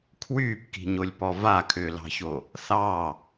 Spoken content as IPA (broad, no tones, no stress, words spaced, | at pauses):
kʰwyːpki̤ɲolʲpɔ vakʰʏːlɑ̤ço | θɑ